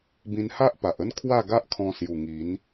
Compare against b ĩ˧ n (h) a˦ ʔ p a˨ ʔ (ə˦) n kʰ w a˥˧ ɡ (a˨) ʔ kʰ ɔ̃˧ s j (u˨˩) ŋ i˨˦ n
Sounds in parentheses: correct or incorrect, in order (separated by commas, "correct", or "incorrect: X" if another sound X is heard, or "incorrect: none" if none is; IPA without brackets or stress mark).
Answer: correct, correct, incorrect: a˦, correct